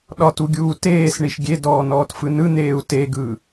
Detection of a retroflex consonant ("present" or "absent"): present